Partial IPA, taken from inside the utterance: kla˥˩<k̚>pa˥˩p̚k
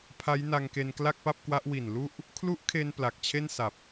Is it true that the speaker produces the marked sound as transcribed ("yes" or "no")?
yes